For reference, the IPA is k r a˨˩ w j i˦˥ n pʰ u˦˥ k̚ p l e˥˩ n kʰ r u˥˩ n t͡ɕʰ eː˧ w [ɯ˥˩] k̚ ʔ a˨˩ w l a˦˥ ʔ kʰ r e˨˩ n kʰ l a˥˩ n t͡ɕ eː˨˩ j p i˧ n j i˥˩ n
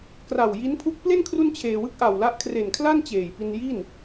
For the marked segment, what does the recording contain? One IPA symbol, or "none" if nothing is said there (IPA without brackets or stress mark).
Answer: ɯ˥˩